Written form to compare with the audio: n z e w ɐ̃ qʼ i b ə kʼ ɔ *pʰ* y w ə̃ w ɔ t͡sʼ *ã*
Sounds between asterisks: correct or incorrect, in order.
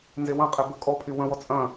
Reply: correct, incorrect: ɐ̃

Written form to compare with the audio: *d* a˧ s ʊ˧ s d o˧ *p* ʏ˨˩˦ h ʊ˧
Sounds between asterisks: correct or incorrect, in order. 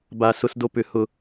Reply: incorrect: b, correct

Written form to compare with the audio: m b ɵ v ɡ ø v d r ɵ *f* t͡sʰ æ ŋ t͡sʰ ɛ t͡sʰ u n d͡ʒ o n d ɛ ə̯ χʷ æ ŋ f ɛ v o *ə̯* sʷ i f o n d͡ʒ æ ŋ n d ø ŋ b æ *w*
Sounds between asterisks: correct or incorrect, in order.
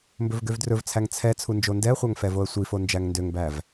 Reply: incorrect: v, correct, incorrect: v

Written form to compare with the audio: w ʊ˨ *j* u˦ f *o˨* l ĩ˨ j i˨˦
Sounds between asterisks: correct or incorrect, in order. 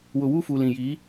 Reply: incorrect: w, incorrect: u˨

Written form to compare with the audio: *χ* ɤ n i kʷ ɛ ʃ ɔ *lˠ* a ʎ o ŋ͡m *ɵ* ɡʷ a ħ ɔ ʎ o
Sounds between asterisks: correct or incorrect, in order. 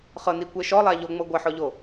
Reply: correct, correct, incorrect: ɤ

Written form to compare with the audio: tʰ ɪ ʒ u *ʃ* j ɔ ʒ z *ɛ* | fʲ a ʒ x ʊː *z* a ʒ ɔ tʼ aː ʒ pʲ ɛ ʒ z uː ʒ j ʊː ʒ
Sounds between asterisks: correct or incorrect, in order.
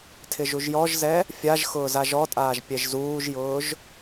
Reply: incorrect: ʒ, correct, correct

